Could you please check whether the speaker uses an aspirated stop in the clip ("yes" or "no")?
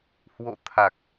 yes